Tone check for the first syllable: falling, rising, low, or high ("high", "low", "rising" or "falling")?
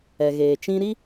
low